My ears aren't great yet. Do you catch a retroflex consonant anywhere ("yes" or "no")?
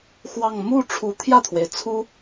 yes